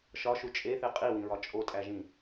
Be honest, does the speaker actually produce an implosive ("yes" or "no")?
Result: no